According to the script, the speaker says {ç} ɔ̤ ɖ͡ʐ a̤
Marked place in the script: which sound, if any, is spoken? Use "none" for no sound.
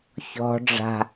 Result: ç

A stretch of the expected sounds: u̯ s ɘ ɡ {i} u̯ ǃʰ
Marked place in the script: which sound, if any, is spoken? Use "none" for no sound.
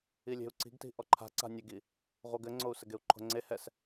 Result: e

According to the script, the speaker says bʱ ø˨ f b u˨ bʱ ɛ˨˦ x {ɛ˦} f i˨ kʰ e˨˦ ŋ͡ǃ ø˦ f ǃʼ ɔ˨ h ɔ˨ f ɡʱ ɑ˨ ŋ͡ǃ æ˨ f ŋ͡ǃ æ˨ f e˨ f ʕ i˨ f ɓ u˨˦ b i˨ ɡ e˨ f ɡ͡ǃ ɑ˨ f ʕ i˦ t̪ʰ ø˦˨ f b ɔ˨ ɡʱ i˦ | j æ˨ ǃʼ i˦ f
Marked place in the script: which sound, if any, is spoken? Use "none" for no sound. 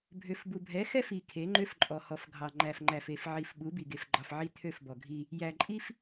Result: ɛ˦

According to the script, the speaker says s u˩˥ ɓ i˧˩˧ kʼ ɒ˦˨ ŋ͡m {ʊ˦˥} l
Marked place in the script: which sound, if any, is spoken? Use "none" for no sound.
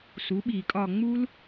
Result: u˦˥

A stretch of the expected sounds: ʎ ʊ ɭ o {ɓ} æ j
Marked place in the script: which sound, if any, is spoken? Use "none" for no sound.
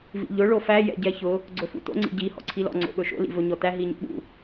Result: f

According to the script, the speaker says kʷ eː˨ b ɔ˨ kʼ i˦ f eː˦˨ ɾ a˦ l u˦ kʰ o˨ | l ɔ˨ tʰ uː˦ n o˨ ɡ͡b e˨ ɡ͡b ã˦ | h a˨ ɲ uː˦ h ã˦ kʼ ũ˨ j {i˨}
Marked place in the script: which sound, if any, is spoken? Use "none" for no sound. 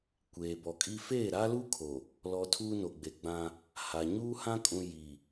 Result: i˨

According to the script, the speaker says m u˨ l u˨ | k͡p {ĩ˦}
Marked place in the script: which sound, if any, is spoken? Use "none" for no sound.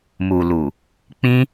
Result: ĩ˦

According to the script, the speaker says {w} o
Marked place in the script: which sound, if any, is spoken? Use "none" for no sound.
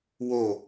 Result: w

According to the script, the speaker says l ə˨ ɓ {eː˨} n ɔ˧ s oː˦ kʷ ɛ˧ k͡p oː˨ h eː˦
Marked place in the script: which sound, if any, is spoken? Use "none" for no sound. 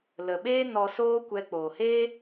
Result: eː˦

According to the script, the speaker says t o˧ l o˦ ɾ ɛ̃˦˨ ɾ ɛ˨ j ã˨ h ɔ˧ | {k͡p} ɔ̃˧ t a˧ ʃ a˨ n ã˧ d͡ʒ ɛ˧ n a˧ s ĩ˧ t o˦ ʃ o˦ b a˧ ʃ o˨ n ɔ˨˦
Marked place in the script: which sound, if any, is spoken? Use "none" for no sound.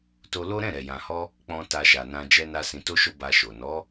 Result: k͡p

